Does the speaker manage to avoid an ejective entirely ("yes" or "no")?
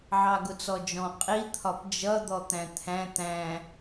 no